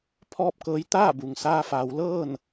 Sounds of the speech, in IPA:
pʰɔː˥˨p̚kɤː˧˥j t̪aː˥˨bu˩ŋ saː˧faː˩˧wlɤː˥˨n

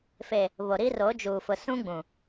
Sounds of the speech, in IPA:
fe˨ | βo˨ɾi˦ro˨˦d͡ʒuː˨ fʊ˨sũ˦ɡ͡bũ˨

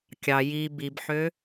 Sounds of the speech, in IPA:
kʲɑ ji bibħø

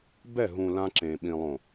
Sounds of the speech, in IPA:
bɛ˦˨ɦũ˨ lã˦ǁẽ˨ɓĩ˨ lˠõ˨

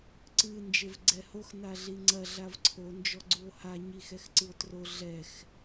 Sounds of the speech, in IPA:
ǀɨ nd͡ʒevɡ͡ǀɛhox naɮiŋ͡ǀɐ ɮavǀʰo nd͡ʒɔɡ͡ǀuo̯ha ɲixɛxǀɨo̯tro ɮɛx

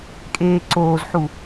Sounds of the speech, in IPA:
kʼeːǀoːzħu

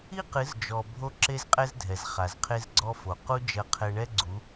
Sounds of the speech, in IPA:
i˦qɨ˨˦zd͡ʒɔ˨ bʱo˦ǁe˦zqʼɛ˦zdʱɛ˨z χa˨zqʰe˦zɡ͡ǀɔ˦fo˨ qu˦ d͡ʒɐ˦qʰɛ˦ ɳɛ˦ɡ͡ǀu˨˦

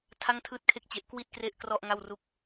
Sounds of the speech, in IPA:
tʰa˥˩ŋtʰɯː˥˩t̚kʰe˥˩k̚t͡ɕe˦˥ʔ kwi˥˩t̚ kre˥˩ʔkrɔ˥˩ʔŋa˥˩w ru˥˩k̚

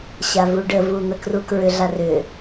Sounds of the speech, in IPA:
ɕavuɖəvu n̪əkrukɹʏɮa rʏ

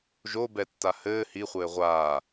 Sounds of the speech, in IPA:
ʒobɛtːa hɘː hiχʷɘː ʁʷaː

